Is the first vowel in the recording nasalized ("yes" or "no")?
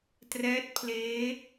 no